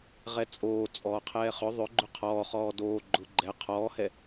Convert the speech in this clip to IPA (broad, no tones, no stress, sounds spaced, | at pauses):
ʁ ɛ t͡sʼ oː t͡sʼ ɔː qʰ ɛː χ ʏ ðˤ ʏ ɡ͡ǃ ʏ qʰ ɔː χ ɔː d oː ɡ͡ǃ ʊ ɡ͡ǃ ɛ qʰ ɔː h ɛ